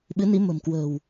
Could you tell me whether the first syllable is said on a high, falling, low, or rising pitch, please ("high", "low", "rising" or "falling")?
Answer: rising